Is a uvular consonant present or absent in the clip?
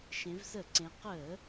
present